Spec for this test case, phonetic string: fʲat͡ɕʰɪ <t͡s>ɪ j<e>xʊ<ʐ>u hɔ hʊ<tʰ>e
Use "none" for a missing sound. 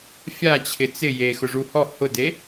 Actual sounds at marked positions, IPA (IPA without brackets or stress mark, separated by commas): t͡s, e, ʐ, d